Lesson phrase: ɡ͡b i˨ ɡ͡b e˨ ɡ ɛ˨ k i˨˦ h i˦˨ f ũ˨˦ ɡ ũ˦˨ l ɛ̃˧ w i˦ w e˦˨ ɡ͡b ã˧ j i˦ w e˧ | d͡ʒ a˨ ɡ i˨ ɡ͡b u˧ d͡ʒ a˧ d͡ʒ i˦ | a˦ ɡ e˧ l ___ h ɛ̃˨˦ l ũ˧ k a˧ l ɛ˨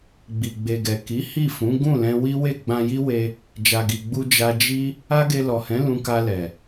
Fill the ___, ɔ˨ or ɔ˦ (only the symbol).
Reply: ɔ˨